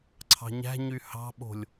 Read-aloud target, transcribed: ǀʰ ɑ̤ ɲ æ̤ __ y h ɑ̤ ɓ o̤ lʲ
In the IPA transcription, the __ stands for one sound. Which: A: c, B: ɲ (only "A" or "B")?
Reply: B